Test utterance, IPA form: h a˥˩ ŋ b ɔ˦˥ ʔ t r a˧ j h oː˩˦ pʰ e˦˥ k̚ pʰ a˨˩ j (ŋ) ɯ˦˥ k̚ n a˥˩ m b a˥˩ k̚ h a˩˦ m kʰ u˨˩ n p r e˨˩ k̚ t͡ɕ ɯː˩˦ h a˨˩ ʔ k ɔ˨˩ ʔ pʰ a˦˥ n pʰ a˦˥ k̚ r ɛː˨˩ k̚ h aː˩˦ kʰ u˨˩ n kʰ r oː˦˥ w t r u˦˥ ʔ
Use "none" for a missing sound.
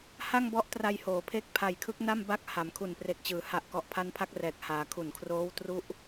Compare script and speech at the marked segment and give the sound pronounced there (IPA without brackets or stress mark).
kʰ